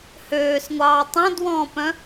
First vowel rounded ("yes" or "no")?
yes